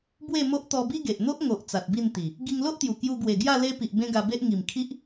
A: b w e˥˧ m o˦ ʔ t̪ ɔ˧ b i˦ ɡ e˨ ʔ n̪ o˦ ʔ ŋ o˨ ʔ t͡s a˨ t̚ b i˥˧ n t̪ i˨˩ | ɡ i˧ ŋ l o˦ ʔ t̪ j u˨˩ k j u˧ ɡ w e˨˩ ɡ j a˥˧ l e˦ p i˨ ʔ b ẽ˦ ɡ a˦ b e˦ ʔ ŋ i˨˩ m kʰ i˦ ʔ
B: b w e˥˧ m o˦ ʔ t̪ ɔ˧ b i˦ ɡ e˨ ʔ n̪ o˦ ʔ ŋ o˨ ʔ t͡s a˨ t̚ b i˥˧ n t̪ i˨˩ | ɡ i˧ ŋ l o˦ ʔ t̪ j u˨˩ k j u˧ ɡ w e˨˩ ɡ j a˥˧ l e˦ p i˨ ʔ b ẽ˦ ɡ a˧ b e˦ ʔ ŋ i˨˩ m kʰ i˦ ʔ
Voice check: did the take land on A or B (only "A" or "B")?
B